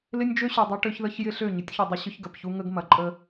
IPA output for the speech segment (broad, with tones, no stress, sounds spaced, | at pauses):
l ɪ˦ nʲ d͡ʒ ø˦ ɕ ø˨ dˤ ɐ˦ ʈ ø˦ ç ð ə˦ ç j ɪ˦ ɬ ø˦˨ ɲ ʏ˨˦ tʲ ç u˨ dˤ ʏ˦ ɕ ʏ˦ ç ɡ ɐ˨ p ç u˦ ŋ ə˦ ɡ m ɐ˨ ǃʼ ə˦